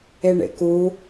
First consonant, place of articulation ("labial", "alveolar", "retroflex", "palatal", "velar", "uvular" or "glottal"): retroflex